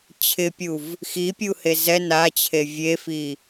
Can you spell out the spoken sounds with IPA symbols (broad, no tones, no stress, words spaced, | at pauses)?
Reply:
t͡ɕʰɪpʲuv | xipʲuhe zɛ nat͡ɕʰe vʲefi